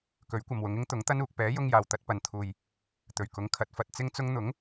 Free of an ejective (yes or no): yes